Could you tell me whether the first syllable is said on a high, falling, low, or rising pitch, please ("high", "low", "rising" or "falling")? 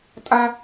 high